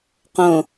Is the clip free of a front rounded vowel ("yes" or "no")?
yes